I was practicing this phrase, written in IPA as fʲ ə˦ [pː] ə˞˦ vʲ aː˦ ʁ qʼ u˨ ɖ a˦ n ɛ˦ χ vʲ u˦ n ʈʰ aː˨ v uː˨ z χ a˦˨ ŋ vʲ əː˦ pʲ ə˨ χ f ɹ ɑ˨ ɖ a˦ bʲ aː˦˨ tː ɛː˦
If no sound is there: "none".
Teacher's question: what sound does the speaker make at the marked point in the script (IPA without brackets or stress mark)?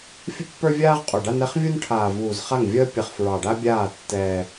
pː